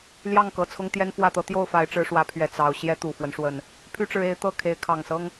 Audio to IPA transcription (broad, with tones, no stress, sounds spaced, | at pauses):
l j ɑ˥˨ ŋ k ɤ˨˩ t͡sʰ ʊ˦ ŋ t̪ j ɛ˦ n f w ä˥˨ t̪ ɤ˦ t̪ j o˥˨ ʊ̯ f a˨˦ ɪ̯ ʈ͡ʂ ɻ̩˨˦ ʂ w ä˨˦ pʰ ɥ ɛ˨˩ t͡s ɑ˨˦ ʊ̯ ɕ j ɛ˦ t̪ u˨˩ f w ə˦ n ʂ w ə˨˩ n | pʰ y˦ ʈ͡ʂ ɻ̩˨˦ e˨˦ ɪ̯ t̪ ɤ˥˨ kʰ e˨˦ ɪ̯ kʰ ɑ˨˩ ŋ s ɤ˦ ŋ